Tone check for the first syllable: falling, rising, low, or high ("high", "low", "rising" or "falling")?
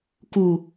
low